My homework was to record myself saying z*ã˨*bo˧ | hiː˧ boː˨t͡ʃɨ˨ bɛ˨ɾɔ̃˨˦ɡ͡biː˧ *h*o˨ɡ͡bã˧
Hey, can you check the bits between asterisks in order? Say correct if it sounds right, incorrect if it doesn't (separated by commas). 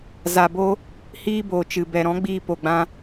incorrect, incorrect